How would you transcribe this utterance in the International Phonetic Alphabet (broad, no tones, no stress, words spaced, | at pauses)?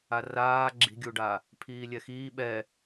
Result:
araː ɡ͡ǁi̤ɡʲuɖa | pʰiːlʲɛxiː ɓɛ